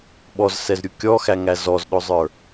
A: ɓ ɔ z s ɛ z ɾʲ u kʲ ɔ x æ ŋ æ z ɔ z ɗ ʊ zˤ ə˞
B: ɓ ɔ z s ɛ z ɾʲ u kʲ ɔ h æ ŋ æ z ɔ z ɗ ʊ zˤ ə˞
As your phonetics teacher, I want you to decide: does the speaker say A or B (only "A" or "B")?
A